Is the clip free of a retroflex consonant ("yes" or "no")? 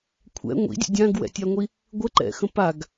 yes